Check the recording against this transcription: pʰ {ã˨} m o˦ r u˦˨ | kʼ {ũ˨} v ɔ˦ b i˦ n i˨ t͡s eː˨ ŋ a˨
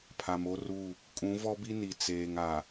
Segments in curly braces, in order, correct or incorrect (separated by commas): incorrect, incorrect